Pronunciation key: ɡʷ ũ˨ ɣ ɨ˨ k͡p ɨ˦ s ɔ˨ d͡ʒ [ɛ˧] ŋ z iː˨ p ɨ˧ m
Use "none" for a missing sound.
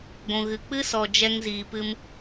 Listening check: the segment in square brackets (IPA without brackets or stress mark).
ɛ˧